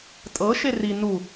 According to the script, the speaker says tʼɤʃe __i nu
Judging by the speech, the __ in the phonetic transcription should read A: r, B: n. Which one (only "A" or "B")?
A